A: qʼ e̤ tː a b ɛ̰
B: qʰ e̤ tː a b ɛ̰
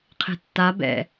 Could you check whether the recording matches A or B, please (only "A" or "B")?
B